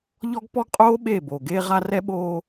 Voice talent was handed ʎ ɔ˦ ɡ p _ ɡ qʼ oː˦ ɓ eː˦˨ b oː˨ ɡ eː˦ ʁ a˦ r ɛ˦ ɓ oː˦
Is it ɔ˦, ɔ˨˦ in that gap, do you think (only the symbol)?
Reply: ɔ˦